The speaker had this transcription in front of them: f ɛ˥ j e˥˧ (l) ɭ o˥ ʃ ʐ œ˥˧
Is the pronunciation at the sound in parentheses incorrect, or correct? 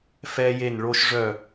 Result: incorrect: n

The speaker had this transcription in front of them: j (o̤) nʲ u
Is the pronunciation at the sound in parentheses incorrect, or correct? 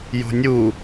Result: correct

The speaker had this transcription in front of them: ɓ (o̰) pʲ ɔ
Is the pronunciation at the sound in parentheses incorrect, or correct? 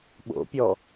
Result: correct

